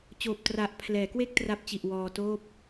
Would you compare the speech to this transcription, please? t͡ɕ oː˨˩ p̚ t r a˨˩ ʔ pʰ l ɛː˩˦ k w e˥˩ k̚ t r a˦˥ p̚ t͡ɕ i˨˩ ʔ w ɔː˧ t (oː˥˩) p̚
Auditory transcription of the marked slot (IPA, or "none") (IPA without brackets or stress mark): oː˥˩